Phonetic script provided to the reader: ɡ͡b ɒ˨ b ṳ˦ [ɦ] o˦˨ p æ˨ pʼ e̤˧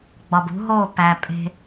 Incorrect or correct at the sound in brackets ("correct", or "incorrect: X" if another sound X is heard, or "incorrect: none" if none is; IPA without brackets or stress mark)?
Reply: correct